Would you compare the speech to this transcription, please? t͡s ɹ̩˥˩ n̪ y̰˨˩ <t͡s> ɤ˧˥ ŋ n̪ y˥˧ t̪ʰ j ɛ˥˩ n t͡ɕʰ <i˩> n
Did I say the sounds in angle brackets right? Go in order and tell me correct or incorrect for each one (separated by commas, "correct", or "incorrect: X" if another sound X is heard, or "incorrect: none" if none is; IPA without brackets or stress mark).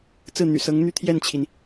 incorrect: s, correct